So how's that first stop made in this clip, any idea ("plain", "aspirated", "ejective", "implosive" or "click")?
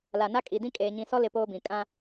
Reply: ejective